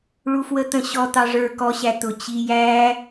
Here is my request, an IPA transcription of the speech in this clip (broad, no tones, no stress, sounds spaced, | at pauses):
ɭ u f w ə t̪ ə̃ ɕ ɔ t̪ ɑ ʐ ə˞ k ɔ ɕ æ t̪ ʊ t͡ɕ i j æ